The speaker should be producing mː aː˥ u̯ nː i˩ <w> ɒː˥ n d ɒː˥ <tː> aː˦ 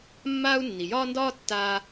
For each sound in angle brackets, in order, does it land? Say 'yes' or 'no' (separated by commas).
no, yes